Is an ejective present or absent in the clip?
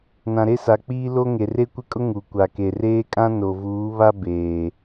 present